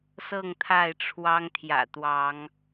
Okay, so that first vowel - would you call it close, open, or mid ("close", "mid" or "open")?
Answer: mid